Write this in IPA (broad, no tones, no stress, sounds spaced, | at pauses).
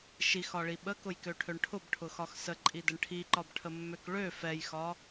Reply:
ʃ i x ɒ ɭ i ɓ ə k ʊ j k ø ʈʰ ø ɳ ʈʰ ʊ b ʈʰ ʊ x ɒ x s ə ǃʼ i d ə ɳ ʈʰ i ǃ ɒ b ʈʰ ə mː ø k ɭ ø f ɛ j x ɒ